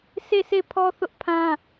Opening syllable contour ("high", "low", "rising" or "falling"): falling